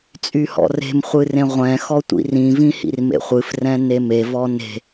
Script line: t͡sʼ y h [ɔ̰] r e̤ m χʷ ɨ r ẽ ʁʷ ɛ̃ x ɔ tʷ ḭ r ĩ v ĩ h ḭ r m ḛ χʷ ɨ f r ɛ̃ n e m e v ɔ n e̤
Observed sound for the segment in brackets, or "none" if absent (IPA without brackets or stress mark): ɔ̰